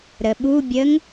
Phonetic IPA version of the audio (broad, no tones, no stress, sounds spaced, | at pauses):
ɾ ə ɓ u bʲ ə ŋ